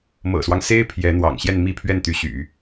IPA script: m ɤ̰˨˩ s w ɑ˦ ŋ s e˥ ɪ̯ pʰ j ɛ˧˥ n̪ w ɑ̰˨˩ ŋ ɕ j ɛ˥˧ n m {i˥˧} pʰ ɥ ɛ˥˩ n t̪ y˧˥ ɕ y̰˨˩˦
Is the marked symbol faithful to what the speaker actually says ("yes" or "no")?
yes